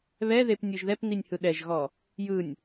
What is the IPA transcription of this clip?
β ɛ ð e p nʲ ɯ ʒ ð ɛ p n i nʲ h ɯ ɗ ɛ ʒ ɣ ɔ | j ɯ nʲ

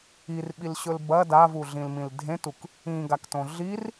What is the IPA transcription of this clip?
i r ɓ i l ɕ ɵ l b ɐ d a v u ɮ ĩ l m ĩ l dʱ ẽ t u k | ĩ ɡ a k t õ ɮ i r

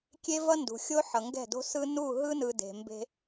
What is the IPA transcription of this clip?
kʲ e˦ v ʌ˦ n d ṳ˨ xʲ o˦ ħ ʌ˨ ŋ ɡ ɛ̤˦˨ d o̤˦ s ɯ˦ n u˦˨ ɦ ɯ˦ n ɯ˨ d e̤˨ m b e̤˦

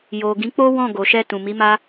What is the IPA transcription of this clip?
j o˨ ɡ ĩ˨˦ k͡p o˦ w ɔ̃˦˨ ɡ o˨ ʃ ɛ˧ t ũ˨ m i˨˦ m a˦

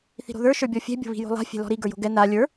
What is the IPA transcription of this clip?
θ i̤ ɾ o̤ ð ə˞ ʃ ə˞ bʲ ɔ fʲ ɛ̤ bʲ o̤ β i̤ j o̤ lˠ a̤ fʲ ɛ̤ l ɔ̤ ɾ i ɡ ə˞ j o̤ ɡ ɛ n a lʲ ə˞

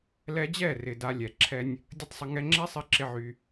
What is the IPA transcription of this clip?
l ɛ˧ d͡ʑ ɛ˦˨ r ɪ˨ d a˧ lʲ ɛ˨ ǁʰ ɛ˦ nʲ | dʲ ə˦ tˤ sˤ ə˧ ŋ ɛ˦ ŋ͡ǁ ɛ˦ sˤ ɪ˧ ǁ ɪ˧ ʕ y˧

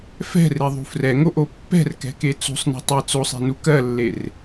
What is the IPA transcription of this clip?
f ɛ̤ r e ðˤ ṳ f r ɛ ŋ o ʔ o pː ɛ̤ r k ɛ̤ k e t͡s ṳ sˤ n e̤ tˤ e t͡s o sˤ e̤ n u k ɜ lː e r

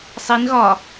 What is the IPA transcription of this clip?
sˤ i n ɣ ɒ

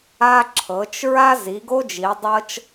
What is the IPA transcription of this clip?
a˦ ǁʰ ɤ˨˦ t͡ʃ ɹ a˦ z i˨˦ ɡ o˦ d͡ʒ i˨˦ dˤ ɤ˦ t͡ʃ

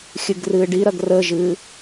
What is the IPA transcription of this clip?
xʲ ɨ ɡ r ɨː ɖ i ɾ ɐ ɡ r ə ʒ ɨː

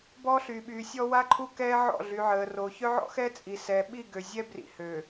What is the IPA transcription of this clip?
b ɔː˦ ɬ yː˨ ɓ yː˨ sʲ ɔ˦ w a˦ ǃʰ u˦ k ɛː˦ ʕ ɔ̰˦˨ ɮ y˨ ʕ əː˨ r o˨ ç œ˦ ʕ ɔ̰˦ x ɛː˦ t͡sʼ i˨ s ɛː˨ ɓ i˦˨ ɡ ø˨ zʲ ɛː˦ b r ḭ˨ h ø˨

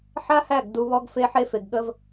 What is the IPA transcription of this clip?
ħ a˦ h æ˦˨ ɡ d u˧ β ɔ˦ ɡ f e˦ ħ e˦ f e˧ ɡ ɠ ə˦ v

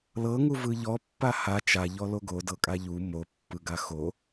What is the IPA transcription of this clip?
l ɤ ŋ u v ɯ ʎ ɔ pː a h a t͡ʃ a ʎ ɔ l o ɡ o d ɤ kʼ a ʎ u m o pː ɯ ɡ a x o

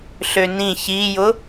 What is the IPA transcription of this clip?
ɬ ø n ĩ ç i j ʊ

